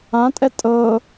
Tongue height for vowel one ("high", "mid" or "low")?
low